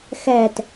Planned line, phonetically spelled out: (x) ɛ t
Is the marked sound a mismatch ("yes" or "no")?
no